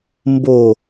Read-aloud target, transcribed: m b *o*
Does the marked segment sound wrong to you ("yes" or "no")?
no